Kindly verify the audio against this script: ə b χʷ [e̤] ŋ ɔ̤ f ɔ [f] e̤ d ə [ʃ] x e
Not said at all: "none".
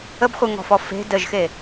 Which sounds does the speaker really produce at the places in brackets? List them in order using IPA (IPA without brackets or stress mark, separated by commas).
e, f, ʒ